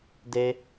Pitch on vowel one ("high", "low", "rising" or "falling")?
high